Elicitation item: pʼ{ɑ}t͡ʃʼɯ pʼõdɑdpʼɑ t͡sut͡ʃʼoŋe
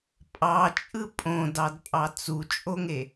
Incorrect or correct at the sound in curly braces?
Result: correct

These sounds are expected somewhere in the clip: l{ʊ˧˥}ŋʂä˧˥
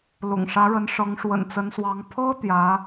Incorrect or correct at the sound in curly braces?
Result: incorrect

